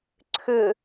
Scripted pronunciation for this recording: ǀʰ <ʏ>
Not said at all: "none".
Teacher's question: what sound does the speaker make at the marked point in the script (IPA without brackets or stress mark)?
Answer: ʏ